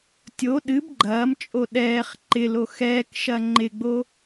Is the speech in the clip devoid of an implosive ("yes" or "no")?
no